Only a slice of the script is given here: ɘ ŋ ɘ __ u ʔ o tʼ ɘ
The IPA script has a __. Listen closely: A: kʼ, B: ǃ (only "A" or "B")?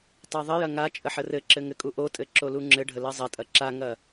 A